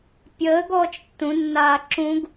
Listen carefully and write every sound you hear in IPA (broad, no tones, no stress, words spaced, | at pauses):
pʲəːɡɔːt͡ʃ tːũnːaː ǁũɡ